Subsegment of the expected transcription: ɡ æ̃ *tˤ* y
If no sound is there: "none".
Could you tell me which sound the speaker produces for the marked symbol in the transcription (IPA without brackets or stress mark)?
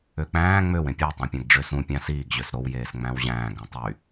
tˤ